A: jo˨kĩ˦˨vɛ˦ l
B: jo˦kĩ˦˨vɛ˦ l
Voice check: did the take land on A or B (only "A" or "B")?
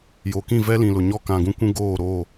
A